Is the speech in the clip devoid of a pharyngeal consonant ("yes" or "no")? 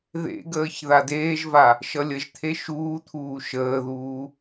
yes